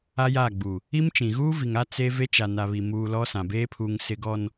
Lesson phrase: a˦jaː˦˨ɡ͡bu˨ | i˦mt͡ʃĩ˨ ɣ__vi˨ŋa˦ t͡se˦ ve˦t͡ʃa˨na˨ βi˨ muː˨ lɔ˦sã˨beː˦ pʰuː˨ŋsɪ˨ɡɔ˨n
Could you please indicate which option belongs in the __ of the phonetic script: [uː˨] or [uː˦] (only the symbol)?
uː˦